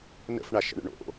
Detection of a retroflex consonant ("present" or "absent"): present